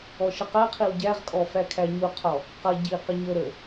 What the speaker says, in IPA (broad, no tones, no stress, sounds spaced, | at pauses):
ɔ ʃ ə q ɜ qʰ i w ɟ æ ʁ kʼ ɔ f æ kʰ æ ɲ u qʰ ɔ | q ʌ ɟ i q ə ɲ ə ɾ ə